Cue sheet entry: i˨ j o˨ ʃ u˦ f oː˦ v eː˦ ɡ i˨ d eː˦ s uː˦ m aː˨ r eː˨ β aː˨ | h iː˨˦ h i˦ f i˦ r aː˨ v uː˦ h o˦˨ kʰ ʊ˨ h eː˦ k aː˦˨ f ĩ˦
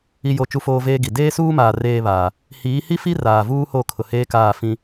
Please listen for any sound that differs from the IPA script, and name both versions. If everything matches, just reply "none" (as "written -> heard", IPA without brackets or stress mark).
ʃ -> t͡ʃ